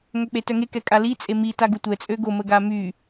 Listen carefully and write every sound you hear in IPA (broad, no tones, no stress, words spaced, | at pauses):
ŋœk͡petœŋe kɛkʼali t͡sʼemi taɡutʷɛ t͡sʼøɡo məɡamy